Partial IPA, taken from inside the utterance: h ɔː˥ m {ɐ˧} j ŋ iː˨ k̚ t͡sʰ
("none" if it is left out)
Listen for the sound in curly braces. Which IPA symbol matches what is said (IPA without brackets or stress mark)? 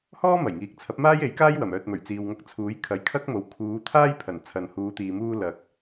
ɐ˨˩